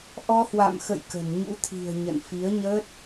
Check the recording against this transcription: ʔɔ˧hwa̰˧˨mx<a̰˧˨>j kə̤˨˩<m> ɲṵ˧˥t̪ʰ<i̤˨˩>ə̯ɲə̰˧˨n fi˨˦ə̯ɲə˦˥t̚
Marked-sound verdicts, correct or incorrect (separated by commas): incorrect, incorrect, correct